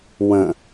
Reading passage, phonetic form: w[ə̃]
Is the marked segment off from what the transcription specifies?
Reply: no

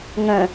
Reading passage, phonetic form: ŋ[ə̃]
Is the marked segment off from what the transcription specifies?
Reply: no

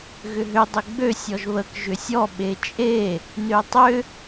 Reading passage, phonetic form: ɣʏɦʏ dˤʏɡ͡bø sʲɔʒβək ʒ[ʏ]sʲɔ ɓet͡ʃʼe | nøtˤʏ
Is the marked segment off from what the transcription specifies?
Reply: no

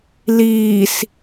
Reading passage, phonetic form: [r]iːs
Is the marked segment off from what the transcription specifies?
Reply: yes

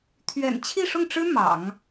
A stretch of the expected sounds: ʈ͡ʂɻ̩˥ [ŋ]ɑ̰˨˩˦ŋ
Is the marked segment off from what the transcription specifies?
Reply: yes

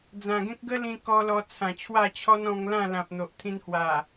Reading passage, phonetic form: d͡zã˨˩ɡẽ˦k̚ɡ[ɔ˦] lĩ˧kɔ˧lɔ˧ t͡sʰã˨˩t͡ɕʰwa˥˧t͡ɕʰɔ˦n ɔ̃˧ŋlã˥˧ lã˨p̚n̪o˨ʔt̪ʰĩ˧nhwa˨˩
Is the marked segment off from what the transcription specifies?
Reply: yes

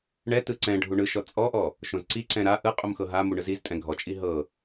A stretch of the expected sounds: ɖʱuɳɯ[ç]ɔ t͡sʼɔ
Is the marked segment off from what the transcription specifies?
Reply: yes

